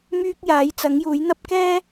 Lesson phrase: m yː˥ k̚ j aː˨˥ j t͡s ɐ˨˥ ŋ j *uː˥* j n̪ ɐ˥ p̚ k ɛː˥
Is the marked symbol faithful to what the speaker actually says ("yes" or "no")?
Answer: no